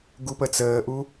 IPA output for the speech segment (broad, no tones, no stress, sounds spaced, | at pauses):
ɡ u p ə t͡s əː ʔ u